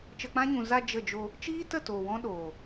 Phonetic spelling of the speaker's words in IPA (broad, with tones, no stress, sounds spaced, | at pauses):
t͡ʃ ə˧ k͡p ã˦ ɲ ũ˨ z a˧ d͡ʒ ə˦˨ d͡ʒ o˧ | t͡ʃ iː˦ t ə˦˨ t oː˨ w ɔ̃˦ ɗ oː˨